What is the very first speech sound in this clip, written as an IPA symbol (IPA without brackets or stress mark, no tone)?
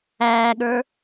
æː